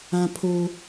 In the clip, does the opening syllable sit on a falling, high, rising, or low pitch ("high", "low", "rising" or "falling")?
high